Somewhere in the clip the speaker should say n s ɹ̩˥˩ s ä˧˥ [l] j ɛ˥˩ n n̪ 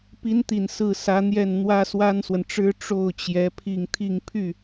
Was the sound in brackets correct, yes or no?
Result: no